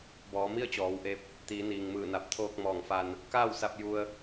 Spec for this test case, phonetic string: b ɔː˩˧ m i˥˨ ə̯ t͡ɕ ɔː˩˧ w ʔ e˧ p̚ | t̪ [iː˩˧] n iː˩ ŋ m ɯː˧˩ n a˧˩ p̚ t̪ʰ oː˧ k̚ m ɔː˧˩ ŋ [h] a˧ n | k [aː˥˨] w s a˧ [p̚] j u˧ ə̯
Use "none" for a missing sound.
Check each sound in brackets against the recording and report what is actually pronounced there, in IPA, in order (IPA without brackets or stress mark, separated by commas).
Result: iː˩˧, f, aː˥˨, p̚